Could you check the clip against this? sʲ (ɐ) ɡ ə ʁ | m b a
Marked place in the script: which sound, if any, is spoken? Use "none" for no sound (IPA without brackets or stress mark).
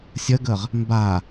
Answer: ɐ